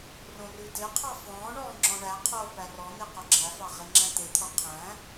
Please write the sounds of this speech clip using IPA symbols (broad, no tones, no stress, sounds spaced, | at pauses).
r õ r ʉ d e qʰ ɑ f ɔ̃ː ɳ ɔː ŋ͡ǁ ɔ̃ ɳ æ qʰ oː p æ r ɔ n̪ e q o ɡ͡ǁ æ f ɑ ʁ e ŋ͡ǁ æ̃ t̪ e t̪ʰ ɔ qʰ æ̃